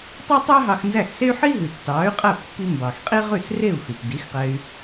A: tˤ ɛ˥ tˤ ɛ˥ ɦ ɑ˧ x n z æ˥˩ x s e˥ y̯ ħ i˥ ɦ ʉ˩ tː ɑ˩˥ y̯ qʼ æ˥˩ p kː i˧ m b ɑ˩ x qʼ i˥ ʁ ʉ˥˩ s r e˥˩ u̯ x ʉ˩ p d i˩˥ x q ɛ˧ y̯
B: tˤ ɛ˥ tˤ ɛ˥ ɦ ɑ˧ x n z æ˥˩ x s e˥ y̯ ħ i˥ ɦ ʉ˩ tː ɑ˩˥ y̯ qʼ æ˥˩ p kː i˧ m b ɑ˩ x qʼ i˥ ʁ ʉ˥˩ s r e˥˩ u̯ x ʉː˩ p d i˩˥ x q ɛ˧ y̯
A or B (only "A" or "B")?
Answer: A